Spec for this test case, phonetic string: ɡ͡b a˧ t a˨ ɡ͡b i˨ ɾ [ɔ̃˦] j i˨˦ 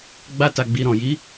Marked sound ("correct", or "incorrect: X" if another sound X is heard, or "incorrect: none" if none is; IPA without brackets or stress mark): incorrect: ɔ̃˨